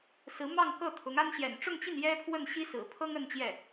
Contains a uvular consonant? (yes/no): no